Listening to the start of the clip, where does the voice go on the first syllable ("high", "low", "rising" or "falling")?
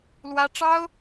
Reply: high